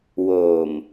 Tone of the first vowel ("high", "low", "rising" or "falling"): low